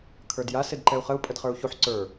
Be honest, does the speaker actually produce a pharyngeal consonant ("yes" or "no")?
yes